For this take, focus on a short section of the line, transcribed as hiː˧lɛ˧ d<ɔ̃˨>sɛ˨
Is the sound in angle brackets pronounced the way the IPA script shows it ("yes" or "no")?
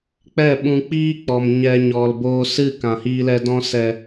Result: no